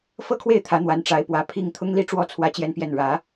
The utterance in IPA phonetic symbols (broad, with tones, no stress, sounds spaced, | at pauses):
f ɤ˥ kʰ w e˥˩ ɪ̯ t̪ʰ ä˧˥ n̪ w a˧˥ n ʈ͡ʂ a˧˥ ɪ̯ p w ä˧˥ pʰ i˥˩ ŋ t̪ʰ ʊ˥ ŋ l i˥ ʈ͡ʂ w ɔ˥˩ t͡sʰ w ä˥ t͡ɕ j ɛ˥˧ n p j ɛ˥˩ n ɻ ä˧˥